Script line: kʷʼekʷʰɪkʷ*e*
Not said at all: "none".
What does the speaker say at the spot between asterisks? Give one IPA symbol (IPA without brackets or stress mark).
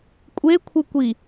i